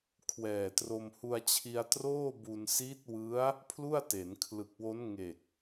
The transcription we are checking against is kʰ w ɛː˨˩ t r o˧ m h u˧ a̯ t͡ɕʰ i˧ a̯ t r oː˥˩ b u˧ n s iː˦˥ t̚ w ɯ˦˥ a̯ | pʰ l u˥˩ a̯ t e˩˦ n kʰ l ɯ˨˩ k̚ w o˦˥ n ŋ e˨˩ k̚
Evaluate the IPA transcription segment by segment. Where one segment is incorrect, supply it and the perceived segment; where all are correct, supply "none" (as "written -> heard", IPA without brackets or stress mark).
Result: none